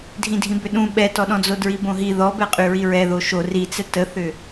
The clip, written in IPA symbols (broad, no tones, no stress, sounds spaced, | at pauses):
dʱ ĩ dʱ ĩ b ʏ ɗ ũ ɓ ɛ t ɔ ɗ ɔ̃ d͡z o d ɹ i b õ ɦ i ð ɔ b ɛ qʼ y ɹ i ɹ ɛ ð o ʃ o r i t͡s ɛ t ə θ ʏ